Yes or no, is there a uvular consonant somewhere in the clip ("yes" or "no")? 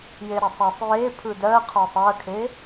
yes